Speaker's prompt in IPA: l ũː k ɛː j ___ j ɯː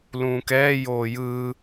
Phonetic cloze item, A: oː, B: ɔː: A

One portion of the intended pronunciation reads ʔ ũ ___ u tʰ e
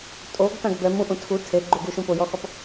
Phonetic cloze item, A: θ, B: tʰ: B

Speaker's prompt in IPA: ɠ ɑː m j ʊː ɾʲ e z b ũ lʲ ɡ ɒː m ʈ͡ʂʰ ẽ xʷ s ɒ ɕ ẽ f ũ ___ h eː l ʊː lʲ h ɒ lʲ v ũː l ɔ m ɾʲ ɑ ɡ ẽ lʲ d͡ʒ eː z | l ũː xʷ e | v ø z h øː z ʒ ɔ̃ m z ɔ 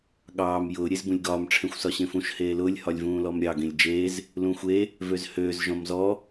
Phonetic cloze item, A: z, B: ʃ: B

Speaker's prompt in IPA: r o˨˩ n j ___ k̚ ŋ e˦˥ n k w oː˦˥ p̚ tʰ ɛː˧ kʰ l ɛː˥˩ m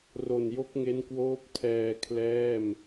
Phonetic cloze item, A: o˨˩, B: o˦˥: B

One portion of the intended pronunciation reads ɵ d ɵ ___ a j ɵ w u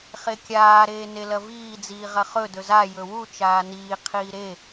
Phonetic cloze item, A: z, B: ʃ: A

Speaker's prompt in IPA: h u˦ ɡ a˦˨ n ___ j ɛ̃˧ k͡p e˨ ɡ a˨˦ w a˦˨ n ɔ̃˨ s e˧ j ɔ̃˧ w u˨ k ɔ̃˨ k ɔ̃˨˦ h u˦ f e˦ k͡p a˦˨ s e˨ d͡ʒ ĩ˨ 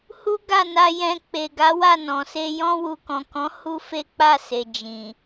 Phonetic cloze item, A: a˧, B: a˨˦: A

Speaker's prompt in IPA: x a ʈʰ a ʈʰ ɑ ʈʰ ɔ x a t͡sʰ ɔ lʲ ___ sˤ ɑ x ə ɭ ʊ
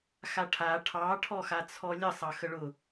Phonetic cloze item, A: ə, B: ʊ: A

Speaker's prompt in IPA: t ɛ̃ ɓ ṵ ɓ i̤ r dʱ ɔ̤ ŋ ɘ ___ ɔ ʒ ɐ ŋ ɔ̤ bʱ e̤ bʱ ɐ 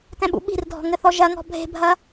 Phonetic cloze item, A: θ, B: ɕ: A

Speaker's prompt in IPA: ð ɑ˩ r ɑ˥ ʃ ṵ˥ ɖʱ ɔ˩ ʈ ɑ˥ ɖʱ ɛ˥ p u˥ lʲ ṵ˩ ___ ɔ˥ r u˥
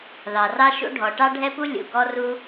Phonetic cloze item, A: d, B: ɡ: B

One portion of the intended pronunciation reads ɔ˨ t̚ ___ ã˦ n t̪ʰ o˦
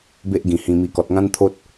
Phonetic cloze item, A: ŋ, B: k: A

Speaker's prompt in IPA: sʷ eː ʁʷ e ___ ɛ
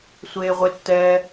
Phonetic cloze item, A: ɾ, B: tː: B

